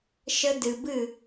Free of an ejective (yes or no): yes